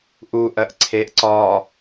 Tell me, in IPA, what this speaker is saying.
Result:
ʔ u ʔ ɜ ʔ ǀʰ e ʔ ǀ ɒ

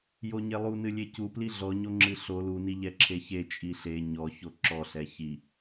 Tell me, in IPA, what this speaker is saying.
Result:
j o ɲ e lˠ u n ɨ lʲ e c u p l i ɮ ɔ ɲ o ŋ͡ǁ ɨ ɬ o l u n i ʎ ɛ ǁʰ e ç e t͡ʃʼ i ɬ e ɲ ɔ ç o ǁ ɔ ɬ ɛ ç i

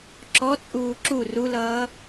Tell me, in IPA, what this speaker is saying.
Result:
ǁ ɔ t͡sʼ uː ǁ u r u l ʌː

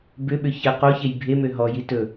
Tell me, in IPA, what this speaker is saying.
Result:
b ʏ ɓ ʏ ç ə q o ç e j bʱ e m ø ɦ ɔ j i t ɵ

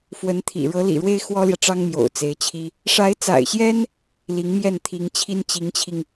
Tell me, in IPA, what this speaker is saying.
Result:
f w ə˧˥ n t̪ʰ ḭ˨˩ ɻ ɤ˧˥ l ḭ˨˩ ɻ w e˥ ɪ̯ x w ɔ˥ l j ä˨ ʈ͡ʂ ɑ˥ ŋ m j o̰˨˩ ʊ̯ t͡s e˧˥ ɪ̯ t͡ɕʰ i˥ | ʂ a˧˥ ɪ̯ t͡s a̰˨˩ ɪ̯ ɕ j ɛ˥ n | l i˧˥ ŋ m j ɛ˥˩ n t̪ʰ i˧˥ ŋ t͡ɕʰ i˥ n t͡ɕ i˧˥ ŋ t͡ɕʰ i˧ ŋ

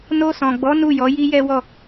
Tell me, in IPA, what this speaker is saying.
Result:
n o˧ s ɔ̃˨ ɡ͡b ɔ˨˦ n u˦˨ j ɔ˨˦ j i˦ j ɛ˦ w ɔ˦˨

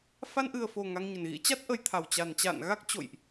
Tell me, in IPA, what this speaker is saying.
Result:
f a˧ n ʔ ɨ˨˩ ə̯ f o˨˩ ŋ a˧ ŋ ɲ ə˨˩ n ɣ ḭ˧˥ t͡ɕ a˦˥ t̚ ʔ ə˧ j t̪ʰ a˨˩ w t͡ɕ a˨˩ n t͡ɕ a̰ː˧˨ n ɣ a˦˥ k̚ t͡ɕ o̰˧˨ j ʔ

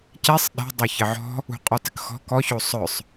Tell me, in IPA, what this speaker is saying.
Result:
c ɛ sˤ ɗ ɛ̤ dˤ o ç ɘ ʕ ɔ̤ | ṳ qʼ ɔ t ɘ k x ɔ̤ k ɔ ç o sˤ œ sˤ

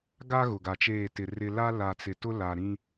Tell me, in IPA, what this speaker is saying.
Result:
ɡ a˦ ɣ ʊ˨ ɡ a˨ t͡ʃ eː˦˨ t ɪ˨ r ɪ˦ l a˦ l a˨ t͡s ɪ˨ t ʊ˦ l a˨ ɾ ĩ˦

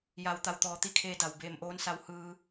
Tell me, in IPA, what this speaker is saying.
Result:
j a˩˧ w t̪ a˩ w t̪ ɔː˩ t̪ i˧˥ kʰ eː˧ d a˩ w b eː˧˩ m ʔ oː˧˥ n s a˧˥ w h ɯː˧

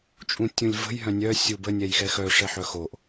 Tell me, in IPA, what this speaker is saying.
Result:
t͡ʃʼ ũ tʲ ũ lʲ v ə̤ j ɦ œ̃ nʲ œ sʲ u b ə nʲ ɛ j x ɛ x œ ʂ ɛ ħ œ x o ʔ

